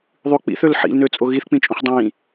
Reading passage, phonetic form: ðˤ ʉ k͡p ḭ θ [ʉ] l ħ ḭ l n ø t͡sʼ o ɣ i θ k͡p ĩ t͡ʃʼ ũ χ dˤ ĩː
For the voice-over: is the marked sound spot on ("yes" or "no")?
no